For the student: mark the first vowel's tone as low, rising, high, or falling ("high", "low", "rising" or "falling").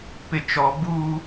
low